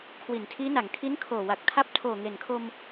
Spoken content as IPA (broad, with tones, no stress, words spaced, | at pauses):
kʰwi˩˦ntʰiː˦˥na˩˦ŋ kʰi˦˥nkʰoː˨˩ wa˨˩k̚tʰa˦˥p̚ tʰoː˨˩ŋe˨˩nkʰo˧m